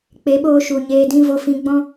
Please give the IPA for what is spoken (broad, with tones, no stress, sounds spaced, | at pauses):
k͡p e˨˦ ɓ oː˧ ʃ u˨ ɲ eː˧ d ĩ˦ v o˧ f ĩ˧ ɡ͡b ɔ̃˦